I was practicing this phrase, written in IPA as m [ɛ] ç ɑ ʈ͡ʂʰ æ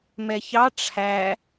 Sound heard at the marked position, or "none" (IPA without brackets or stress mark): ɛ